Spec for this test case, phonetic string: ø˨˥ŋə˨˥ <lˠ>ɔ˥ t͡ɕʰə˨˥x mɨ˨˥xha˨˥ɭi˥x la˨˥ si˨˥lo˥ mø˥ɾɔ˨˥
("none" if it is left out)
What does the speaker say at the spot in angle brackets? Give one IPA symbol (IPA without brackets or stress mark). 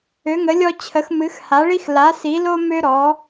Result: lʲ